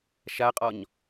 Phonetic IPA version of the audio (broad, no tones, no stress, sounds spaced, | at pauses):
ʃ a qʼ ɒ ɲ